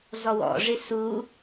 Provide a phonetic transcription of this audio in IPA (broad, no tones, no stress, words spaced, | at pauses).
zɔwɔ̰ʐɪ su